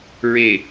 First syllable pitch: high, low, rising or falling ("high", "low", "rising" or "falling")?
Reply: low